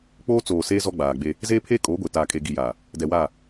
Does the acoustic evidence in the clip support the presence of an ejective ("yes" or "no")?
yes